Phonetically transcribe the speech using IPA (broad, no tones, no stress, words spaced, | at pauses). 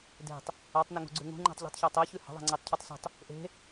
de̤tˤ | atˤnɛŋṳɡ͡ǀʉ ŋṳŋ͡ǃɛ̤tˤʎi̤tˤçɜtˤ ɛçʉ hə̤ðˤɛ̤ŋ͡ǀetˤcʰʉtˤ sṳtˤ | ʔe̤